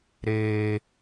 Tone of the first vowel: low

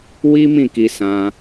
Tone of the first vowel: high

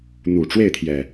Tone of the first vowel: low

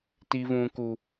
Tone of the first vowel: high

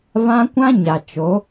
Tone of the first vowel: high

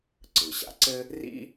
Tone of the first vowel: low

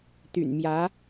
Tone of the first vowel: low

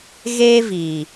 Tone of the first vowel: high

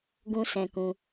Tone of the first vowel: high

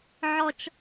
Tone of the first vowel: high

